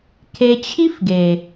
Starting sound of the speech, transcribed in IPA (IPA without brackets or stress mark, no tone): kʰ